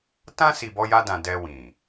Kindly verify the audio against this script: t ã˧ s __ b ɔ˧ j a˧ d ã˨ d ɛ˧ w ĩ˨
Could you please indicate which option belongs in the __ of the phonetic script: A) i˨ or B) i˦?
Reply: A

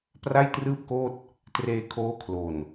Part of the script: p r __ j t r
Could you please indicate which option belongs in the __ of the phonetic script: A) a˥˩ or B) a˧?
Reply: A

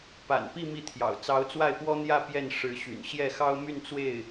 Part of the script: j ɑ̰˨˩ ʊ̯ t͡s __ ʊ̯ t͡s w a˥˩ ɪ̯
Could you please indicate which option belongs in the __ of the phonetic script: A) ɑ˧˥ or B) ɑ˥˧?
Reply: A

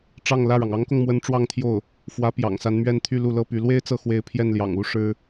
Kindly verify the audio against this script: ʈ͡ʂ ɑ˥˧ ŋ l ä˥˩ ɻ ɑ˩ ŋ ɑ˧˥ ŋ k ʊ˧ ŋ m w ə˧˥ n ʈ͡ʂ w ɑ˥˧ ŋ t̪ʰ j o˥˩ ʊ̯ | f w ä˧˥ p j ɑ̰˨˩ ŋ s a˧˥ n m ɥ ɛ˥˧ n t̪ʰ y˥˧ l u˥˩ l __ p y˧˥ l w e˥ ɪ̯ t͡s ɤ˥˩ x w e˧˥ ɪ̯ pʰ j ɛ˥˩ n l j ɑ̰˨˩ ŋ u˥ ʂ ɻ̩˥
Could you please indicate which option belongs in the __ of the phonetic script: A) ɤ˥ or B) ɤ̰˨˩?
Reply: A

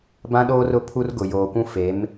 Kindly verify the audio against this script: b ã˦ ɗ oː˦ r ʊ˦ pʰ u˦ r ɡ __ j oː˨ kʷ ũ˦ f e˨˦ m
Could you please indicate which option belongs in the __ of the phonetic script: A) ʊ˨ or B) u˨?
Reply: A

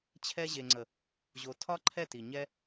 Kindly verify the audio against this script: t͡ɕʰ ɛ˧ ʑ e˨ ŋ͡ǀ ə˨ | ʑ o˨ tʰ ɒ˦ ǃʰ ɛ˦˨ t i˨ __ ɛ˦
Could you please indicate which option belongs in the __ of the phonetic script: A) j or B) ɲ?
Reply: B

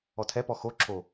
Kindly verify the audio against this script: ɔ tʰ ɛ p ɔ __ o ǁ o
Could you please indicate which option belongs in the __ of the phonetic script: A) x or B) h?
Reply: A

